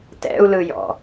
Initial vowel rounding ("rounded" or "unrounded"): unrounded